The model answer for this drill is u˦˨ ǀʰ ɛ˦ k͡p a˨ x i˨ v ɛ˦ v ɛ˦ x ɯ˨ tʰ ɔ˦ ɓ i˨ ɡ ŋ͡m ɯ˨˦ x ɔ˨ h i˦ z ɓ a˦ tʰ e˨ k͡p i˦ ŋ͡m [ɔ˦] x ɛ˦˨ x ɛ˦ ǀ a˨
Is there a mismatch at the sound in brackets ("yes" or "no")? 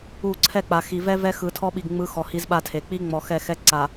yes